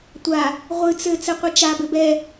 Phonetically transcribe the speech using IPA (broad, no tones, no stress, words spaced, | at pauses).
tʷa | ʁʷɨ t͡sɘ t͡sɘqʷit͡ʃa bɘbɛ